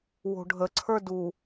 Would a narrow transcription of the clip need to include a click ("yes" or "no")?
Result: yes